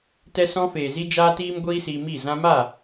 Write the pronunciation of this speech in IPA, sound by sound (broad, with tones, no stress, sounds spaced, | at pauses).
t ɛ˧ s ɔ̃˧ f eː˨ z i˧ d͡ʒ aː˦ t iː˦ m ɡʷ iː˦ s iː˧ m i˦˨ z ã˧ m a˦˨